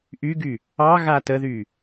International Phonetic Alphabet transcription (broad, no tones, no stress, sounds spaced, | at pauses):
ʔ y ɡ y | ɑ ɣ a t ə ð y